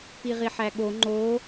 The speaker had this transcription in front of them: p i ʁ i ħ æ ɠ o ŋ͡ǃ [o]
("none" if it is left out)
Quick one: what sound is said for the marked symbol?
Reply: o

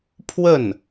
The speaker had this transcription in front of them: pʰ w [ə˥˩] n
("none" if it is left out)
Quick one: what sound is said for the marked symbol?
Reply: ə˥˩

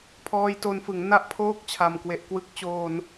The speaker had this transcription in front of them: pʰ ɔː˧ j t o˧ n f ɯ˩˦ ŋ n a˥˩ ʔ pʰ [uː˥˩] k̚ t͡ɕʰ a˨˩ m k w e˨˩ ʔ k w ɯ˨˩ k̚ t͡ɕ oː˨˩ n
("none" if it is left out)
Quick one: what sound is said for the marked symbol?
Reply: oː˥˩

